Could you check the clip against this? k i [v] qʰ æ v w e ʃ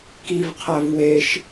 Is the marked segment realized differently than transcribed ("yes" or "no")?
no